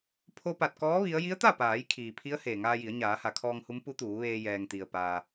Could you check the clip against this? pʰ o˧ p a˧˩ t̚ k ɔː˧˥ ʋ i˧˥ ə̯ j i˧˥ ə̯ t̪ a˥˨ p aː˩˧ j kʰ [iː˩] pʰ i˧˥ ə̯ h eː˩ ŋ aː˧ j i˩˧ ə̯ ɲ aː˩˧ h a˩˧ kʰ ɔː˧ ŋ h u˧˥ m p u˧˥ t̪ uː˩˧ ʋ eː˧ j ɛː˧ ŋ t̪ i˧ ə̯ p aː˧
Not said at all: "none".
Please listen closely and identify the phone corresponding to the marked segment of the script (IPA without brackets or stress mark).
iː˩